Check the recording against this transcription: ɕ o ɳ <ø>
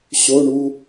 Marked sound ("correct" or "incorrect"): incorrect